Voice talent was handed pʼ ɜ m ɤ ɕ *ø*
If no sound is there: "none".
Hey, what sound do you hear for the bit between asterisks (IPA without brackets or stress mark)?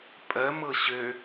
ø